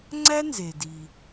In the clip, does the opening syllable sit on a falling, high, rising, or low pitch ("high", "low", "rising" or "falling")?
high